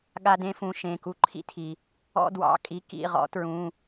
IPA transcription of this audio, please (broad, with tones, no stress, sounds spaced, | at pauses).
ɠ a˦ d ẽ˦ f ũ˨˦ ʃ ẽ˩˧˩ k u˦ ǃʰ ḭ˦ tʰ i˩ | ɔ̰˦ d w ɑ̰˩˧˩ kʼ i˨˦ k ḭ˩˧˩ ʁ ɔ̰˨˦ t ɹ ũ˩˧˩